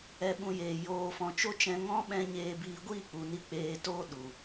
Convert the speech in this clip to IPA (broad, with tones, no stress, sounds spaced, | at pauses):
ɛ˧ ɓ ũ˧ j eː˨ j oː˨ f ɔ̃˨ t͡ʃ o˦ t͡ʃ ɛ̃˧ ŋ ɔ̃˦ ɓ ɛ̃˧ ɲ eː˧ b iː˧ ɡʷ iː˦˨ k͡p u˨ n i˧ k͡p eː˧ t oː˦ ɗ u˨